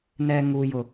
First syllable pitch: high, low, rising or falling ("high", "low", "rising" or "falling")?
low